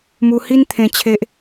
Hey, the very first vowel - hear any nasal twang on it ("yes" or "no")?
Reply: no